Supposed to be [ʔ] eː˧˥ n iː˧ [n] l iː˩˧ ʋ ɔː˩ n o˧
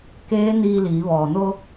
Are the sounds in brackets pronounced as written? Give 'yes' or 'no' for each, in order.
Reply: no, no

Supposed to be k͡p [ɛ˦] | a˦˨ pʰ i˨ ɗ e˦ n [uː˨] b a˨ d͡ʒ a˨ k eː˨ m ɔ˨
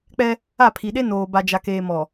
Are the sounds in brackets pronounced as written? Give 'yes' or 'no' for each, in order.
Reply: yes, no

